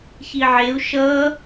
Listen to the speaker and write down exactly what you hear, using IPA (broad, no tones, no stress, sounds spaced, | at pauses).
ç i ʕ e u̯ ʃ ʌ